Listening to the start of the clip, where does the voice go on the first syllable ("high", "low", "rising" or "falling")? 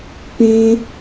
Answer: high